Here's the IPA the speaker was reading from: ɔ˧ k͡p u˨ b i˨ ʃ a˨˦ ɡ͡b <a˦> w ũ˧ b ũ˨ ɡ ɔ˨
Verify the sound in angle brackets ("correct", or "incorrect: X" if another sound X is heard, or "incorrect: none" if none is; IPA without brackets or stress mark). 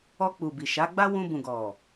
correct